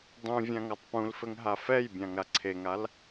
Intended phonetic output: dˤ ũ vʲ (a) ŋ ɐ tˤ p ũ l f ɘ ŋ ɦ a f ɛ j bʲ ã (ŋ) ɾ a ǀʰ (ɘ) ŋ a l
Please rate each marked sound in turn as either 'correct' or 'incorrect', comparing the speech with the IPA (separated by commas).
incorrect, correct, incorrect